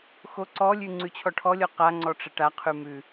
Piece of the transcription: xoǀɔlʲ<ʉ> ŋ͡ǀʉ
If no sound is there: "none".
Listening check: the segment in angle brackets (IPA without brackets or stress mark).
ʉ